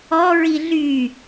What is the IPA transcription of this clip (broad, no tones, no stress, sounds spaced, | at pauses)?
ɔ ɹ i ɮ y